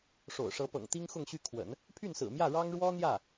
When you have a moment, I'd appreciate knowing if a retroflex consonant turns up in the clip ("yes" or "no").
yes